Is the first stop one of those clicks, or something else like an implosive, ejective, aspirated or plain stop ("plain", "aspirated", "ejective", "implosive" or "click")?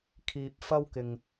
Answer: aspirated